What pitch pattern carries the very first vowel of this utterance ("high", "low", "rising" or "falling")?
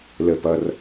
low